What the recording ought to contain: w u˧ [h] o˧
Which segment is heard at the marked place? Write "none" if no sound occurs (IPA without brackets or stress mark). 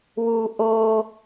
ʔ